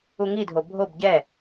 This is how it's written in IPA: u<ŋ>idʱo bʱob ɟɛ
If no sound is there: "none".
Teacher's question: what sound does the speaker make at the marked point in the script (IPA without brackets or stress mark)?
ŋ